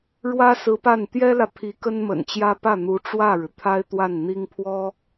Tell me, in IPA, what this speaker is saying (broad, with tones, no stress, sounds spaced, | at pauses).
ɻ w ä˥ s ɹ̩˧˥ p a˥˩ n t̪ j ɛ˥ l ä˨ pʰ i˧˥ k ə˥ n m ə̰˨˩ n t͡ɕ j ä˥ p ä˥˩ n̪ u˧˥ ʈ͡ʂ w ä˥˩ ɻ ɻ̩˩ t̪ʰ a˥ ɪ̯ t̪ w a˥˩ n n̪ i˥ ŋ pʰ w ɔ˥